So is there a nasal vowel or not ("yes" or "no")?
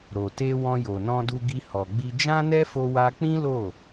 yes